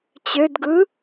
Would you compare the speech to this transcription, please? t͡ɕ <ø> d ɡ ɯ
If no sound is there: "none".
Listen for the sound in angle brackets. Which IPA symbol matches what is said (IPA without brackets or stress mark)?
ø